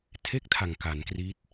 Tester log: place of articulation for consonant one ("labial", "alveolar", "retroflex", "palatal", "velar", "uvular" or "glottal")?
alveolar